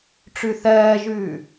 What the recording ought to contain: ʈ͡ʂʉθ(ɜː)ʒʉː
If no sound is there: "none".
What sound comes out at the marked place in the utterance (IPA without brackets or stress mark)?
ɜː